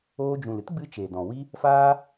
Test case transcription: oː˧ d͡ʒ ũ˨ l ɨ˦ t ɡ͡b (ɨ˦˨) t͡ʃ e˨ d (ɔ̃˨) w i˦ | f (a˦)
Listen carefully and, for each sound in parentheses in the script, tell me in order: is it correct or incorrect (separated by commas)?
incorrect, correct, incorrect